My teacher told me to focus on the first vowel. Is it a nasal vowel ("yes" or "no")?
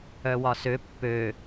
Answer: no